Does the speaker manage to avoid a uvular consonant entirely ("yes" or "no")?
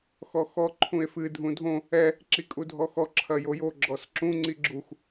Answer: yes